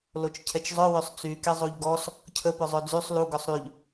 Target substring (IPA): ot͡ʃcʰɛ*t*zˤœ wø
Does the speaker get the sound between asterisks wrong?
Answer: yes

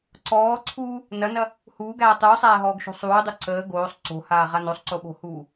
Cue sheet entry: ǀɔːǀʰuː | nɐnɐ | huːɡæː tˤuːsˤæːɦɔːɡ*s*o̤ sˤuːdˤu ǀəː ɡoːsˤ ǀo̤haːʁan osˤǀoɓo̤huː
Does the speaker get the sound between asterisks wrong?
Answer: yes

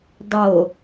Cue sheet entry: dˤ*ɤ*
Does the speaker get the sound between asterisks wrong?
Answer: yes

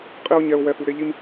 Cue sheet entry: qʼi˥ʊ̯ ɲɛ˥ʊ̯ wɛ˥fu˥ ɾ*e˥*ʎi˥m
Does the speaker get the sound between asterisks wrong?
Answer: no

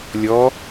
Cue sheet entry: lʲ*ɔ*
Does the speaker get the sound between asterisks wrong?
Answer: no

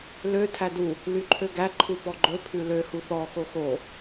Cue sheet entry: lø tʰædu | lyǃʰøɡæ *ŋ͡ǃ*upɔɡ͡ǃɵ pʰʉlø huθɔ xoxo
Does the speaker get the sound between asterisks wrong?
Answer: yes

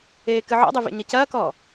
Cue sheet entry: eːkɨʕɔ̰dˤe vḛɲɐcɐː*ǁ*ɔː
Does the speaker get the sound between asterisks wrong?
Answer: yes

